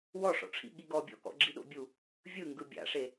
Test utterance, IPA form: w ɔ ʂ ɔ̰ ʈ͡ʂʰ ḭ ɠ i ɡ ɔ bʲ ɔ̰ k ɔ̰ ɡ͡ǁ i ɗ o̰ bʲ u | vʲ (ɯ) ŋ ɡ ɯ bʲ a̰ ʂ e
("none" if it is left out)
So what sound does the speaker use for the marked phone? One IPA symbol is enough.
ɯ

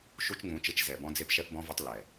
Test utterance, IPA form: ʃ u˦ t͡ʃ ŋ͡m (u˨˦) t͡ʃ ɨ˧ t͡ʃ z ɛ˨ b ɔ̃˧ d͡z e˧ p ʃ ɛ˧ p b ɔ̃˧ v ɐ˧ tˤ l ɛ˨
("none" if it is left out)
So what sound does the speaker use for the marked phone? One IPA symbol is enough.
ũ˨˦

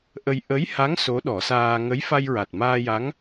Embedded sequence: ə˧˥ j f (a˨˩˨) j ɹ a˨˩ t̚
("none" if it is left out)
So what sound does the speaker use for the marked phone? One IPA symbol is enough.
a˧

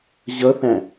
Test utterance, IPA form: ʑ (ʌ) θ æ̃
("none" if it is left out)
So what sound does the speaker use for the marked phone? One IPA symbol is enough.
ʌ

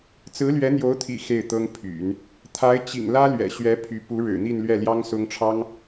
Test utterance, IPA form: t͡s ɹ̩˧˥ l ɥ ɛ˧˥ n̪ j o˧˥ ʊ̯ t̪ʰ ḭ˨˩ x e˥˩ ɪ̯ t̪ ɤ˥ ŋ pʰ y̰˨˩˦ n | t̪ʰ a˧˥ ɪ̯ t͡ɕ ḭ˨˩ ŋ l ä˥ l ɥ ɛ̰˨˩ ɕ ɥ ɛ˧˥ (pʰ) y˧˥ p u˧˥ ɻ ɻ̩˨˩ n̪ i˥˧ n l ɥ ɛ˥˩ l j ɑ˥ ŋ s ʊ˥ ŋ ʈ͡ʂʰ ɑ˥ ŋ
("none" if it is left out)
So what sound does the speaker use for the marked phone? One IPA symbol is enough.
pʰ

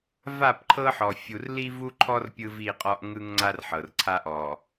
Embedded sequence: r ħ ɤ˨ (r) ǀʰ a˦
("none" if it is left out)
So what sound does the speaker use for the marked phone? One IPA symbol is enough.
r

